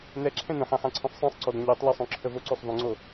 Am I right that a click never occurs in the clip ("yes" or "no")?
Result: no